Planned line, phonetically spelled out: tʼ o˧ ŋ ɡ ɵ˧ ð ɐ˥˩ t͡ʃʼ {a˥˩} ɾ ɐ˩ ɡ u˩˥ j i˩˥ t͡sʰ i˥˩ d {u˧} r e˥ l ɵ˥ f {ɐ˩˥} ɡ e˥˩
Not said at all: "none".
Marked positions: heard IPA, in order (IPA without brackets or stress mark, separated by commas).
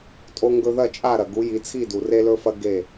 a˥˩, u˩, ɐ˥